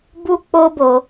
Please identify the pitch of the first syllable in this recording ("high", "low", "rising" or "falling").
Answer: high